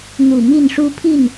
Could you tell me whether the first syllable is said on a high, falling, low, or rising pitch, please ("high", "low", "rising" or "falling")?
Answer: low